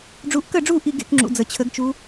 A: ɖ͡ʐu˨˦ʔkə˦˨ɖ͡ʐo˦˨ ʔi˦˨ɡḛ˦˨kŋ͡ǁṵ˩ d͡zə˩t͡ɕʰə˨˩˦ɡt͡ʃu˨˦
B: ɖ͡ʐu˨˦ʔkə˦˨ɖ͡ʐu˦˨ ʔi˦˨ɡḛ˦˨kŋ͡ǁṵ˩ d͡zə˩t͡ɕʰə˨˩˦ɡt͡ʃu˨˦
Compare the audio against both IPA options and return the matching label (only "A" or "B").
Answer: B